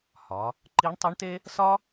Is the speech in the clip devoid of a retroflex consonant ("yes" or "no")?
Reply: no